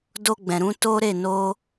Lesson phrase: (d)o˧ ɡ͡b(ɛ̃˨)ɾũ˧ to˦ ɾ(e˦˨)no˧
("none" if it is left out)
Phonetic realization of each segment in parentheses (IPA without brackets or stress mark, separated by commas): d, ɛ̃˨, e˦˨